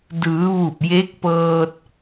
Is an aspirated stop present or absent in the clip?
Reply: absent